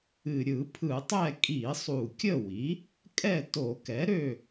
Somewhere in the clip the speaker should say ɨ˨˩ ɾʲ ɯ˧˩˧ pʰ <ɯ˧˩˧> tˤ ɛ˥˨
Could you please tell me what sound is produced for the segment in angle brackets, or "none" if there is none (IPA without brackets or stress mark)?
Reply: ɯ˧˩˧